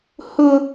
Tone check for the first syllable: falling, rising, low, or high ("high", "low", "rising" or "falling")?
high